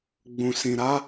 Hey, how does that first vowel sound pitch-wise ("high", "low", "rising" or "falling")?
low